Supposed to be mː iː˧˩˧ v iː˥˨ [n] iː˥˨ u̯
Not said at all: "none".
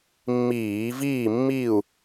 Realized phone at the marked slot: mː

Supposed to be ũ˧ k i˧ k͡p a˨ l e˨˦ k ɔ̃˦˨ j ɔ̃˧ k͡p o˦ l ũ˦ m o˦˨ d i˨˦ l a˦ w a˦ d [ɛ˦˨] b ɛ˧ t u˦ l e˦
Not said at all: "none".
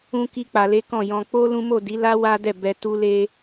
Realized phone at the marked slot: ɛ˦˨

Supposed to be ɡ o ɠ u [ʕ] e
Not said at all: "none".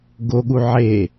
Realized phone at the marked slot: ʕ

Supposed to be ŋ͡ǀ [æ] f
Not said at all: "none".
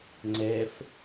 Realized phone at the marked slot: ɛ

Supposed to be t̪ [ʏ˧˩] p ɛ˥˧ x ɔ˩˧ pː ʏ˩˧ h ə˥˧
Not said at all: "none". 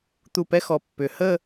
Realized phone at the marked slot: u˧˩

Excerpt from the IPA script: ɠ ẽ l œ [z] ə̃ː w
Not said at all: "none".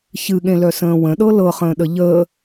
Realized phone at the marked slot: s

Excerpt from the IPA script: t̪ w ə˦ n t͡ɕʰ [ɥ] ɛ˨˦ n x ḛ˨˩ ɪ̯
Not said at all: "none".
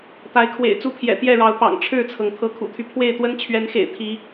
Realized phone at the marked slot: ɥ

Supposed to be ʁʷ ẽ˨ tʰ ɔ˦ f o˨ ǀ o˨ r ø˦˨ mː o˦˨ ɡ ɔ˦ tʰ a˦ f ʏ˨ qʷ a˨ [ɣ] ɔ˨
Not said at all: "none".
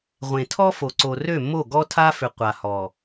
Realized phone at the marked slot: h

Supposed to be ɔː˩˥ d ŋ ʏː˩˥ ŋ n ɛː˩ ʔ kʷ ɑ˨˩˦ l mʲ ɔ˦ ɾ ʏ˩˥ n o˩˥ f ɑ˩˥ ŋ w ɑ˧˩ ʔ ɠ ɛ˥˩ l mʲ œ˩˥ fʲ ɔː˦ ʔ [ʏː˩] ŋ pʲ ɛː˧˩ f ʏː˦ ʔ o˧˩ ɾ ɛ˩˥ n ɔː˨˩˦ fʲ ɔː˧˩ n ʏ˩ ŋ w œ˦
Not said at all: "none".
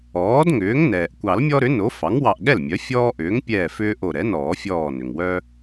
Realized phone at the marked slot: ʏː˩˥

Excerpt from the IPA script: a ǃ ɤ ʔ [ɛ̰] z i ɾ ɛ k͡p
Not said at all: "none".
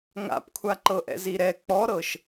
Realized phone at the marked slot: ɛ̰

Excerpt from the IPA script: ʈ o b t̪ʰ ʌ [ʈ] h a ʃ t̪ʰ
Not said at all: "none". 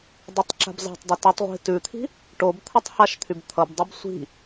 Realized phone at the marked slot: tˤ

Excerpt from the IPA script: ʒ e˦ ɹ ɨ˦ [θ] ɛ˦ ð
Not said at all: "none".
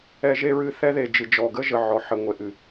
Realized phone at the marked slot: θ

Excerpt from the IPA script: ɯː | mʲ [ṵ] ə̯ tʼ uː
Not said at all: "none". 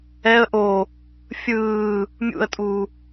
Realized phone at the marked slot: ṵ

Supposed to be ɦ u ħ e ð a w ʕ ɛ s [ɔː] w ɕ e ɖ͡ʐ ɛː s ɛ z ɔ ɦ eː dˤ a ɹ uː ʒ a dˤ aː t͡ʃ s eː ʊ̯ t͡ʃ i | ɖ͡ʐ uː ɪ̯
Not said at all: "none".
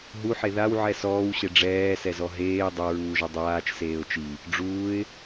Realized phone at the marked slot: ɔː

